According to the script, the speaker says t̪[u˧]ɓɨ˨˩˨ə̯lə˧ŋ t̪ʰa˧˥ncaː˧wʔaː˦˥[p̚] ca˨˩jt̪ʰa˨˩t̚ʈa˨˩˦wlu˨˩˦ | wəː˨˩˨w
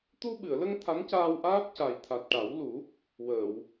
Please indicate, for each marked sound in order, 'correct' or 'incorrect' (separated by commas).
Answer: correct, correct